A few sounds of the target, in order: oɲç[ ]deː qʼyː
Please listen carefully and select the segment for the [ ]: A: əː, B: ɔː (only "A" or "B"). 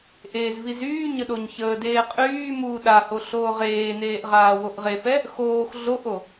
A